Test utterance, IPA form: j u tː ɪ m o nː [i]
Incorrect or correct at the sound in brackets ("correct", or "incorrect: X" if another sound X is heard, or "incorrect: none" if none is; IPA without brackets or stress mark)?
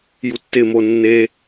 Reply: incorrect: e